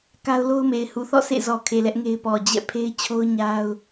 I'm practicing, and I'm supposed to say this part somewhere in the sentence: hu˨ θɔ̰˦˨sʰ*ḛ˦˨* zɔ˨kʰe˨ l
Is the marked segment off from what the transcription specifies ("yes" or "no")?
no